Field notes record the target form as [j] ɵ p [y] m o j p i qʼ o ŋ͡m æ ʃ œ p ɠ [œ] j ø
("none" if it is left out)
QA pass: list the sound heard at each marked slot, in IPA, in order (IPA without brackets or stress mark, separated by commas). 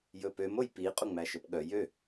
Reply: j, ø, œ